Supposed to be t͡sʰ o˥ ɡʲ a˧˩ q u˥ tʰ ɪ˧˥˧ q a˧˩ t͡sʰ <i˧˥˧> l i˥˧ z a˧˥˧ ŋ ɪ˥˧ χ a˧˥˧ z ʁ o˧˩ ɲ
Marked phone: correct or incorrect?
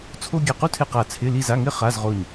incorrect: ɪ˧˥˧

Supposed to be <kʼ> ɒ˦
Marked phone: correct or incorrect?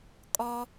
correct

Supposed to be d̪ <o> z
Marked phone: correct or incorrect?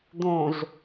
incorrect: õ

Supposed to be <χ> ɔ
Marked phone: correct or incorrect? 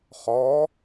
correct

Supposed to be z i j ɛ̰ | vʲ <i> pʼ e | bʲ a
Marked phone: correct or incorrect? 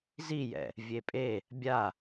incorrect: e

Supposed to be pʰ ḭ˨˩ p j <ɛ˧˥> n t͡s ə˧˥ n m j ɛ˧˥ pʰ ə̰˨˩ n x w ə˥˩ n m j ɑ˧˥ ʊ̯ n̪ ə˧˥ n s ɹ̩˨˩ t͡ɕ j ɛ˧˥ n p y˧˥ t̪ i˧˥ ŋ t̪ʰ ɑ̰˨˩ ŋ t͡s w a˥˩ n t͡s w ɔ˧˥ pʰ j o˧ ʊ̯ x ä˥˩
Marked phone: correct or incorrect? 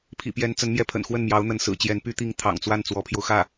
correct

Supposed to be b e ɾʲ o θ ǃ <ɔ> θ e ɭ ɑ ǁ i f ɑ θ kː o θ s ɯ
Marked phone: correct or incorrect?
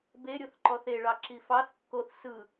correct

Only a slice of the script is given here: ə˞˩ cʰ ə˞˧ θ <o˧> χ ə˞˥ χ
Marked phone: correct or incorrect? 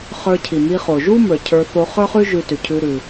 correct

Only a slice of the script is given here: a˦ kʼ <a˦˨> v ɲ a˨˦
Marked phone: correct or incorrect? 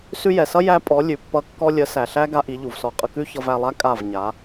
correct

